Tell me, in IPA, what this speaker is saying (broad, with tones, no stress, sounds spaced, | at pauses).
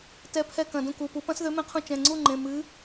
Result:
t ɛ˨˥ pʰ ɛ˧ k ɐ̃˩˧˩ d ũ˥˨ k u˩˧˩ p u˨˥ p ɐ̃˨˥ s ð ø˨˥ m ẽ˧ qʰ ũ˧ t͡ʃ ɛ̃˩˧˩ ŋ͡ǀ u˥˨ ŋ͡ǃ ẽ˩˧˩ m ɨ˨˥